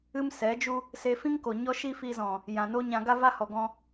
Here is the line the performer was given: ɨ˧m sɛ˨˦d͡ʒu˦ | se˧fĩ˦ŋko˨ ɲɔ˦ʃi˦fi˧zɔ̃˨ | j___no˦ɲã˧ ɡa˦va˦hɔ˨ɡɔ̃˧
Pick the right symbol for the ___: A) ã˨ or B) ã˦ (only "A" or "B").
A